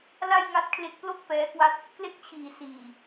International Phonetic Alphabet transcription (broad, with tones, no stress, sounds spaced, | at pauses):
l a˥˩ j ŋ a˦˥ t̚ kʰ l e˦˥ k̚ p l o˥˩ k̚ p ɛː˦˥ k w a˥˩ t̚ | k l e˦˥ k̚ t͡ɕʰ iː˩˦ s iː˨˩